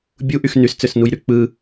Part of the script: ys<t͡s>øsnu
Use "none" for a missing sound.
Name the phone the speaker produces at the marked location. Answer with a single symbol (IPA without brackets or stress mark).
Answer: t͡s